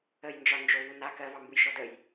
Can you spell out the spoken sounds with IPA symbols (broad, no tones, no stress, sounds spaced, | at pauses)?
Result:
ə j n d͡ʒ ɒ n d͡ʒ o v u n a k ɜ v ɑ m b u j ʃ ɔ d ə j